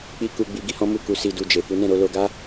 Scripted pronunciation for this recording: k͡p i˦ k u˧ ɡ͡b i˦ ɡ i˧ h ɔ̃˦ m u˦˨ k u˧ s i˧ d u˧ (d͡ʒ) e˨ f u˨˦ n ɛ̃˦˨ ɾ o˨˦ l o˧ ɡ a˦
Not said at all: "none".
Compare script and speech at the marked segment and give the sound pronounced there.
d͡ʒ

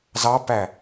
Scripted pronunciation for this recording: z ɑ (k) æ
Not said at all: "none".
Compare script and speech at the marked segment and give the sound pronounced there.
p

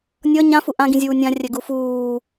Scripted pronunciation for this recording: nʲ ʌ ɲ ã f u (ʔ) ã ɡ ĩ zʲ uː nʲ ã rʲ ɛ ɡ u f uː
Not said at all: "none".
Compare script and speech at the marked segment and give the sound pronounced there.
ʔ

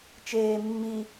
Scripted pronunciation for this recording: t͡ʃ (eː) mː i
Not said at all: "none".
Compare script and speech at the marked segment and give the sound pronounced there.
eː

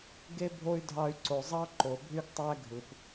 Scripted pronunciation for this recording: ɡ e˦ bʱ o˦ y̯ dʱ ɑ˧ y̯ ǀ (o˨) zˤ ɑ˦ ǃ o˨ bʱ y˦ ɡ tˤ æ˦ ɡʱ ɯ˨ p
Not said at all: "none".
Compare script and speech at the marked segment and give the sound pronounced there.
o˨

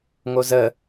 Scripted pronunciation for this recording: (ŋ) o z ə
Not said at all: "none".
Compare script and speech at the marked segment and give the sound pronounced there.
ŋ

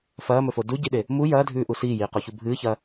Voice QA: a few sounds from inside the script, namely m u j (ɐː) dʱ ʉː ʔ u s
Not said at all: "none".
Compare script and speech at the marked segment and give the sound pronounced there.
ɐː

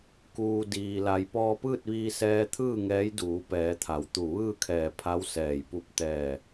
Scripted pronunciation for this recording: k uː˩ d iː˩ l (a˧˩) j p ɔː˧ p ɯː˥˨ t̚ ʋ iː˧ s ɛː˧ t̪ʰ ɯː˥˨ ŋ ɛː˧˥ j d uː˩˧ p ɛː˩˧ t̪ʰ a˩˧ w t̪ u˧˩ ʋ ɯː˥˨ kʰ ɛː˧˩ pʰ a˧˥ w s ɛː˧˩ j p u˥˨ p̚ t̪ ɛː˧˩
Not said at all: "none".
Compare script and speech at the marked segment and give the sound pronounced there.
a˩˧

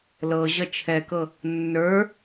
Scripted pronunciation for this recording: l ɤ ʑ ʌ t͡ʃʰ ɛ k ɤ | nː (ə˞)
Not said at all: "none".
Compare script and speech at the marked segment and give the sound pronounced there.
ə˞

